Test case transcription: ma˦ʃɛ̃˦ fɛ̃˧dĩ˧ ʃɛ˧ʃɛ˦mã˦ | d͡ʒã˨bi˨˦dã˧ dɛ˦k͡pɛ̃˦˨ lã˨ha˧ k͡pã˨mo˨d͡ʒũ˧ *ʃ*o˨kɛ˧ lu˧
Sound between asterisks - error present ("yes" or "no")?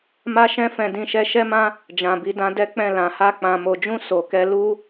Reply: yes